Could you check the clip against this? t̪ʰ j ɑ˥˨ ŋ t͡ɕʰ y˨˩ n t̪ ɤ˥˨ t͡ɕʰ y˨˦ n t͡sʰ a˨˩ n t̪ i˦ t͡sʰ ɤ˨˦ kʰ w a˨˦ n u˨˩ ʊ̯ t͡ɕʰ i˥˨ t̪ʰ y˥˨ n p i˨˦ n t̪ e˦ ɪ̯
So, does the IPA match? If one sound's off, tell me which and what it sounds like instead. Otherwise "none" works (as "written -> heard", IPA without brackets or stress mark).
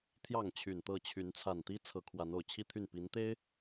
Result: u˨˩ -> o˨˩